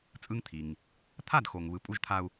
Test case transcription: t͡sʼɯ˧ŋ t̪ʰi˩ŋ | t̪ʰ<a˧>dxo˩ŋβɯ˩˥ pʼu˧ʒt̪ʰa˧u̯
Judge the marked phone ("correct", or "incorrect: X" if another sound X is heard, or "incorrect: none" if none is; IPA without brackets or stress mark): incorrect: a˥˩